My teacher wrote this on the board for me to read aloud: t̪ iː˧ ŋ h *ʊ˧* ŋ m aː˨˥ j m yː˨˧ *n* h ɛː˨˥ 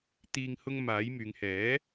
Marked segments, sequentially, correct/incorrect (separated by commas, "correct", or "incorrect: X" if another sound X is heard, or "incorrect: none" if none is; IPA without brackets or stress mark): correct, incorrect: ŋ